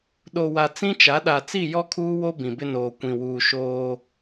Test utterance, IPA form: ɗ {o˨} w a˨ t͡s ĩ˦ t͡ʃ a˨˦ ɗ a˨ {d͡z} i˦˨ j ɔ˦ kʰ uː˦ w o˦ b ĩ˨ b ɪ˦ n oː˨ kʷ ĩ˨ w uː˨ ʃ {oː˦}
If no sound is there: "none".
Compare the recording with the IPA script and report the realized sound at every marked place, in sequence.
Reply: o˨, t͡s, oː˦

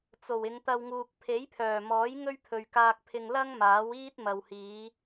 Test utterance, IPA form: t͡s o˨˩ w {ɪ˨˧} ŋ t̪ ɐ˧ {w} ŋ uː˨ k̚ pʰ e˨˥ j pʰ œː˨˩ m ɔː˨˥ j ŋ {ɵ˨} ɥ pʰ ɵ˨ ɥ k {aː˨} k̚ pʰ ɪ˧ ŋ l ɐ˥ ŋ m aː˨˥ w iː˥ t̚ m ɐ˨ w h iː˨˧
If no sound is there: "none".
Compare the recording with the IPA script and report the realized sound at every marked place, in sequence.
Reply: ɪ˨˧, w, ɵ˥, aː˧

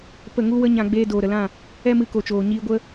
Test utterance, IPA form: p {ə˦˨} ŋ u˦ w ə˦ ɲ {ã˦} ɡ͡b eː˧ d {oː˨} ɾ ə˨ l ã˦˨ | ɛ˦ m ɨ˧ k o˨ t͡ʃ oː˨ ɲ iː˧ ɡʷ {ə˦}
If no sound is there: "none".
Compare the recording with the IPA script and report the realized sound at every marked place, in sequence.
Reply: ə˦˨, ã˧, oː˨, ə˦

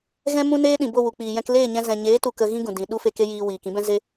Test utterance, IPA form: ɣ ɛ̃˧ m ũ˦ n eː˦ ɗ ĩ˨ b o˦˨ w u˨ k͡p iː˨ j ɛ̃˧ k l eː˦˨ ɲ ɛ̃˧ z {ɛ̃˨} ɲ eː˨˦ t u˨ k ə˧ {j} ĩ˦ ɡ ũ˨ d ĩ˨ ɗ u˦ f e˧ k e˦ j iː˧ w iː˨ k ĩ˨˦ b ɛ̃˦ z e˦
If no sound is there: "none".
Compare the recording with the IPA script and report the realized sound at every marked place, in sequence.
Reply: ɛ̃˨, ɣ

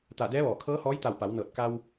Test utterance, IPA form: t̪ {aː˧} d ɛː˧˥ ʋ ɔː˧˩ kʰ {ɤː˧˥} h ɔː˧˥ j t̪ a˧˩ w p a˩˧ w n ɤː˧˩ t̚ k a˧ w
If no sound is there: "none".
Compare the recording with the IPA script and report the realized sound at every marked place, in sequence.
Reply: aː˧˩, ɤː˧˥

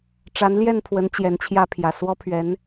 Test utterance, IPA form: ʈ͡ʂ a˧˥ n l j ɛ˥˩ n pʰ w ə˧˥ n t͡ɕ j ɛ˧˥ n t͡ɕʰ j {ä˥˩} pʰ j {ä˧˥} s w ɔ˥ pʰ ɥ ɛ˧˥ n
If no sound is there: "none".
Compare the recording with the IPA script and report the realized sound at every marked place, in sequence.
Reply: ä˥, ä˨˩

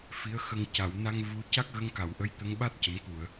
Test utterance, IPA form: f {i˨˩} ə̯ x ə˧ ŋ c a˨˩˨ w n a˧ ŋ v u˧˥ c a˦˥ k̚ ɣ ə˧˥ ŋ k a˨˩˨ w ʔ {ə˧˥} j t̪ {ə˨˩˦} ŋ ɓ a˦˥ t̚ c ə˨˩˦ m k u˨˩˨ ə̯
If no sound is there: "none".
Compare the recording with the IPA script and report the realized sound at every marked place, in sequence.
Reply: i˧˥, ə˧˥, ə˧˥

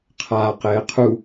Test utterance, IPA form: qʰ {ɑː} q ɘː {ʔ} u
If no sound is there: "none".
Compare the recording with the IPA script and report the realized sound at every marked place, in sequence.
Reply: aː, qʰ

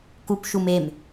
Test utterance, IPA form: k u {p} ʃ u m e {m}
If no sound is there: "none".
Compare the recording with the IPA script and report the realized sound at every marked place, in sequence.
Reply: p, m

